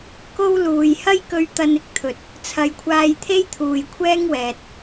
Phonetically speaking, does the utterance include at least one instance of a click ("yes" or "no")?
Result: no